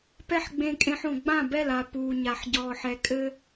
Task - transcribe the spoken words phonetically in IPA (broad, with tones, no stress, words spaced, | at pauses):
pɛ˦ħɡ͡bẽ˧kʼẽ˧ħ õ˨ɡ͡bã˦˨bɛ˦˨la˨ puː˨ ɲa˨ħɟɔː˨ħɛ˨ kʼɘ˦